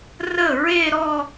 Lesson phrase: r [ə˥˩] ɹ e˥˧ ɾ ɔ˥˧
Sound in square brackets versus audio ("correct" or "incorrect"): correct